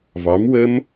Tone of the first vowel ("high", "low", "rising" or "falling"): rising